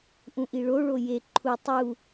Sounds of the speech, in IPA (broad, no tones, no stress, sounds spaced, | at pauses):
ʔ ũ ʔ i ɭ o ɭ o j e ǃʰ u tˤ u